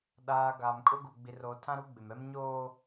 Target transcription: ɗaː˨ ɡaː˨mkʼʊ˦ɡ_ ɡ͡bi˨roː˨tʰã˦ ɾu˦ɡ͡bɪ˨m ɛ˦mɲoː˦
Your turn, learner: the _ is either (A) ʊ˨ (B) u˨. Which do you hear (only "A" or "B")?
B